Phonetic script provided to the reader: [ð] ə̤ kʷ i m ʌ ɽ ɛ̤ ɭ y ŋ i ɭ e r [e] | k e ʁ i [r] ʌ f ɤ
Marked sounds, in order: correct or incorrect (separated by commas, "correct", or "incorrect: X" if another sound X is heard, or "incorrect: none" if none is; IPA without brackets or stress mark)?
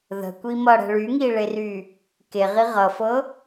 correct, incorrect: y, incorrect: ʁ